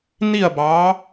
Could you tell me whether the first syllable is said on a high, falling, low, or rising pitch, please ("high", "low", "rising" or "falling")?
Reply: falling